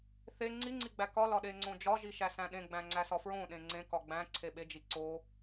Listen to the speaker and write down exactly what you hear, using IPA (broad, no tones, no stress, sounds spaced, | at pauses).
θ e ŋ͡ǀ i ŋ͡ǀ i ɡ͡b æ k ɒ l ɒ ɗ e ŋ͡ǀ õ d͡ʒ ɒ ʒ i ʃ æ s æ̃ ɗ ẽ ɡ͡b æ̃ ŋ͡ǀ æ s ɒ f ɹ õ ɗ ẽ ŋ͡ǀ ẽ k ɒ ɡ͡b æ̃ ǀʰ e ɓ e d͡ʒ i ǀ o